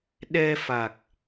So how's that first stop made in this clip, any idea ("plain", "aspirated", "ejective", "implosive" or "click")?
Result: implosive